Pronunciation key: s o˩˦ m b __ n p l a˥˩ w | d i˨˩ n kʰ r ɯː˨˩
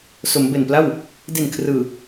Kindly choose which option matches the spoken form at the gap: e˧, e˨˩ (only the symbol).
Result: e˨˩